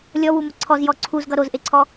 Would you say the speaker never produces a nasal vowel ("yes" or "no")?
yes